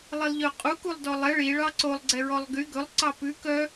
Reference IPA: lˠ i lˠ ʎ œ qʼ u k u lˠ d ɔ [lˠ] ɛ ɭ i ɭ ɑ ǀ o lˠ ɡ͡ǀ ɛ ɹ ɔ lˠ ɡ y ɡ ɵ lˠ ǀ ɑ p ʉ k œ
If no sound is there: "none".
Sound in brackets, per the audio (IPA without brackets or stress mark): lˠ